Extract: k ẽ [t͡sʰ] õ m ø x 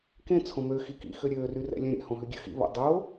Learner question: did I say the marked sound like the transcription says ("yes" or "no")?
yes